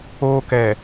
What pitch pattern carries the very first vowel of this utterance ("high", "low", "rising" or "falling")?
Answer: high